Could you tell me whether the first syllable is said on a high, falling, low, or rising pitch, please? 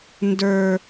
high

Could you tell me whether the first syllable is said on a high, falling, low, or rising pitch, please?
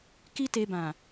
high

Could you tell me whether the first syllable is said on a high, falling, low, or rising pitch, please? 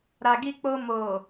low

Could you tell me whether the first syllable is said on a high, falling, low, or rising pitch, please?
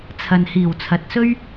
low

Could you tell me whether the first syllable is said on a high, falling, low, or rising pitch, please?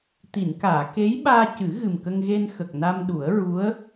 low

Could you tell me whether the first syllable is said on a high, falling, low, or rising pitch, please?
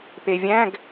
low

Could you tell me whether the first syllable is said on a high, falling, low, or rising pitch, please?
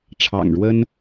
low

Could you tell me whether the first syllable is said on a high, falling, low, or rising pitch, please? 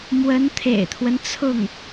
rising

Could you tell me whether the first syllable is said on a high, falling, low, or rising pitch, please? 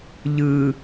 low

